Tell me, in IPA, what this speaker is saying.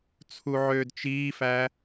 t͡sʰ u ʕ øː d t͡ʃ iː f æ

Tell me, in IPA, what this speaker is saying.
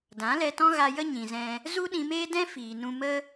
d ã˨˦ l ɛ˧ t ɔ̃˦ ɣ a˧ j ə˦ ɲ ĩ˨ z ɛ̃˧ | z u˦ ɗ ĩ˧ m eː˦ d ɛ̃˦ f iː˨ n ũ˧ m ə˦

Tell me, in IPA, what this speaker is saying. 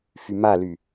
f y m a l y

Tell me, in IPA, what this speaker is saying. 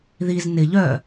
ð i z n ɪ ʎ œ

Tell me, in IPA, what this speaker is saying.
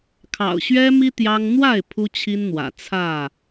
kʰ ɑ̰˨˩ ʊ̯ ɕ ɥ ɛ˦ m i˦ t̪ j ɑ˦ ŋ n̪ w a˥˨ ɪ̯ pʰ u˦ t͡ɕʰ i˦ n n̪ w ä̰˨˩ t͡sʰ ä˥˨

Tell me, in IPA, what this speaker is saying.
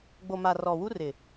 ɡ͡b o˨ m a˨ r ɔ˨ w u˦ r ɪ˨

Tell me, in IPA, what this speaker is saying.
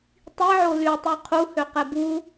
tˤ i ʕ o l y tˤ y qʰ u h ø q ɛ b u

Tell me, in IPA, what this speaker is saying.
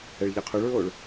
ɛ ɭ ʎ a qʰ o ɭ ɹ oː ɭ

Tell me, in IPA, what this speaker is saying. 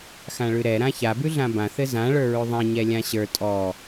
x ã ɭ ʉ ɾ ɛ ɾ ã ç a b ʉ ɮ ã b ã θ ɘ z ã ɭ ə˞ ɹ ʉ ðˤ ɛ̃ ɲ ɛ lʲ ã ɕ ə˞ tʼ ɔ

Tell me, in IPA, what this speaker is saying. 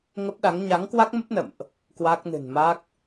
ŋ ə˦˥ p̚ ɗ a˨˦ ŋ ɲ a˨˦ ŋ k w a˦˥ k̚ m ə˦˥ p̚ n ə̰˧˨ m ʔ | k w a˦˥ k̚ n ɨ̤˨˩ n m a˦˥ k̚

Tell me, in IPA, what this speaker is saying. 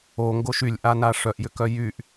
o ŋ ɡ o ʃ y lʲ ʔ a n a ʂ œ ʔ j ʏ k œ j y ʔ

